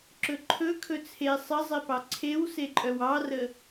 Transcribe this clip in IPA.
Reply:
ǁ ɵ ǃʰ ɵ kʰ ɵ t͡sʰ e sˤ ə zˤ e p ɑ ǀʰ e w s e ǃʼ œ w ɑ r ə

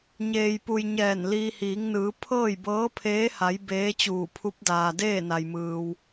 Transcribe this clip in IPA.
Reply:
ɲ eː˧ j p u˧ j ɲ ɛː˧˩ n l iː˧ h iː˩˧ ŋ n ɯː˩˧ pʰ ɤː˥˨ j b ɤː˧˥ pʰ eː˧˥ h a˩˧ j b eː˧˥ t͡ɕ uː˧˩ pʰ u˧˥ p̚ d aː˩ d eː˥˨ n a˩ j m ɯː˩ w

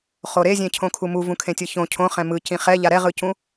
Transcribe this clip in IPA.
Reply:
χ o ɾ e zʲ ẽ cʰ õ kʰ u m u v ũ kʰ ẽ tʲ ɯ ç õ cʰ õ χ ɛ̃ m ɯ c ĩ χ ɛ ʎ a ɾ ɛ ʁ ɯ c ũ

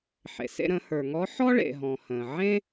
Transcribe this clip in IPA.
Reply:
ħ ḛ˩ s ḛ˧ ɾ ə̃˩˧ h ə˞˩ ŋ ɔ˧˥ ħ ɔ˥ ɭ ḛ˩ ɦ ɔ̃˩ h ə̃˩ ʕ ẽ˥

